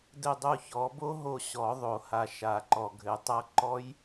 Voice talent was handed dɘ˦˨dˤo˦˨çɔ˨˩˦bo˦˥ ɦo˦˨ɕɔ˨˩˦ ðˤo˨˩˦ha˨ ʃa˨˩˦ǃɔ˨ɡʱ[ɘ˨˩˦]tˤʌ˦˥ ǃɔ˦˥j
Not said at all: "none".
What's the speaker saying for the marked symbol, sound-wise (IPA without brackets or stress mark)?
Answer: ɘ˨˩˦